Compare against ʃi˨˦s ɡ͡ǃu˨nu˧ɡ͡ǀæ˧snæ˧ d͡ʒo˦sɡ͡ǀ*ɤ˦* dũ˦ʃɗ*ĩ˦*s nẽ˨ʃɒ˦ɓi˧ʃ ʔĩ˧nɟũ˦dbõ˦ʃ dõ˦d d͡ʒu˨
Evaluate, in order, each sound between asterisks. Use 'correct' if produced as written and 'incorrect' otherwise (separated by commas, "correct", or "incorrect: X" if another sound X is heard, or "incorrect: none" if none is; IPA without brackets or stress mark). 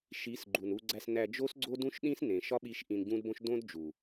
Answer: incorrect: o˦, correct